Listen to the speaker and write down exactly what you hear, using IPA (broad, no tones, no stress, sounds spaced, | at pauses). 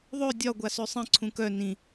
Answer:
ðˤ ø dʲ ɒ ɡʷ a s ø sˤ ĩ ǀʰ ũ k œ n ĩ